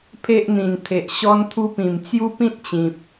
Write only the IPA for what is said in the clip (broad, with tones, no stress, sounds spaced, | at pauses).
pʰ e˦ ʔ n̪ ĩ˨˩ n t̪ʰ e˨ ʔ ɕ ɔ˦ n t̪ʰ u˦ p ĩ˨˩ m t͡s j u˦ p ĩ˦ t̚ t͡ɕ ĩ˨ p̚